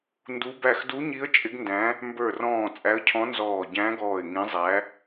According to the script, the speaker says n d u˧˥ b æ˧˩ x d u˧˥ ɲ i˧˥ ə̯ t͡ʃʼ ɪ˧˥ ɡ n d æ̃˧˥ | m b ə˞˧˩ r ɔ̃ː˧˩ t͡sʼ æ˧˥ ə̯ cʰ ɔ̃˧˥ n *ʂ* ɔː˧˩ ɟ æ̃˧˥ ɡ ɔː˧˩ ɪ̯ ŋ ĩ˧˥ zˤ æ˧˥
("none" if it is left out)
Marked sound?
z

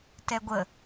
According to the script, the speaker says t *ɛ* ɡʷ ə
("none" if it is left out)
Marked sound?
ɛ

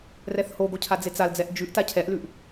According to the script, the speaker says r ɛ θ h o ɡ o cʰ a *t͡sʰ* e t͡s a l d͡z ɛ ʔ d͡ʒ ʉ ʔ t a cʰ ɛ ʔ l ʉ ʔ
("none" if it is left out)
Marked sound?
d͡z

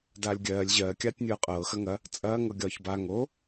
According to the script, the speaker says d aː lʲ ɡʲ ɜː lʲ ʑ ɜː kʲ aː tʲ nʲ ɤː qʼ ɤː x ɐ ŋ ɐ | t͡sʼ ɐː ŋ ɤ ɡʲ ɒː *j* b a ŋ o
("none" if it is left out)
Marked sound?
ç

